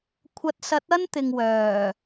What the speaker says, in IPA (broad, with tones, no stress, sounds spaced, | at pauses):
kʷʰ ɐ˧ t̚ s ɐ˨˥ t̚ ɐ˥ n t̪ ɪ˨ ŋ w œː˨˩